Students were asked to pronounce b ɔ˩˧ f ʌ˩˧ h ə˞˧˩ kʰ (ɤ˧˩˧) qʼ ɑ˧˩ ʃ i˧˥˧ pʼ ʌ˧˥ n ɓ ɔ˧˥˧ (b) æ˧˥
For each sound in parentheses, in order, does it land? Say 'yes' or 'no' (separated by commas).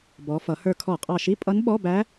no, yes